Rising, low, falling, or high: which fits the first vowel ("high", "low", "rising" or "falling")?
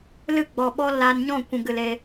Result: falling